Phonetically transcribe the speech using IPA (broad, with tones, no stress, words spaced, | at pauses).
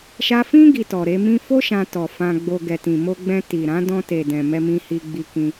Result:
ʃa˧fĩ˦ ɡi˧tɔ˨ɾe˨˦mĩ˦ fo˦ʃã˧tɔ˨ fã˧ɡ͡bo˧ ɡɛ˨tĩ˨ mo˧ɡ͡bɛ̃˧ ti˨ɾã˨˦ dɔ̃˧te˨dɛ̃˨ mɛ˧mĩ˧ hi˧ɡ͡bi˧kĩ˧